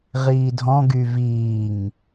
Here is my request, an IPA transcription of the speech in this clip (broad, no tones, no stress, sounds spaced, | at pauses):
ʁ iː dʱ ɔ̃ ɡ y v iː ŋ